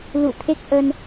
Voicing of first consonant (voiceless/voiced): voiced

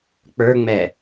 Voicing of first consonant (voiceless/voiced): voiceless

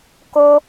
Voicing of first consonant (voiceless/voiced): voiceless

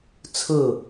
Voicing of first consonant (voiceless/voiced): voiceless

